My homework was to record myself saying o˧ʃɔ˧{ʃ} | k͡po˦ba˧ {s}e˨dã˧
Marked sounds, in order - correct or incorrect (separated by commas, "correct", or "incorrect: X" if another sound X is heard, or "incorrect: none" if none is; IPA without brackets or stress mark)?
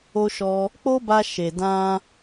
incorrect: none, incorrect: ʃ